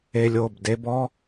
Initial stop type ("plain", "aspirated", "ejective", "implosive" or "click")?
plain